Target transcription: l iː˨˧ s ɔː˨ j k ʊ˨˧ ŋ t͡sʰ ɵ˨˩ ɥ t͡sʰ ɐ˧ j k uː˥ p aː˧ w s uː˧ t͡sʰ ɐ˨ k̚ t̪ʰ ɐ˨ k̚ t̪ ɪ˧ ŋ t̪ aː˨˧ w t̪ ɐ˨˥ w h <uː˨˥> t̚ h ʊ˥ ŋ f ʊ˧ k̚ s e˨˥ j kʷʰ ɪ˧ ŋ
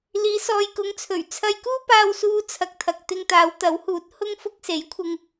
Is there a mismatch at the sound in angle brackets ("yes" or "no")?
no